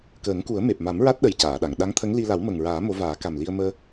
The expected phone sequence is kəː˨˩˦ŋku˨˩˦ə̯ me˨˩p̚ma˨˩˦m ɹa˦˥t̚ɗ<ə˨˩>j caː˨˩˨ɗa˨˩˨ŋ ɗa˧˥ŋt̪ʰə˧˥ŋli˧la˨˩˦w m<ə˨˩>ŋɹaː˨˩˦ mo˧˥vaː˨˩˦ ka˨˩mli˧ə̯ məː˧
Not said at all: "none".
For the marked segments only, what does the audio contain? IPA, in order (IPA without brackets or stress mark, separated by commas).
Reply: ə˨˩, ə˨˩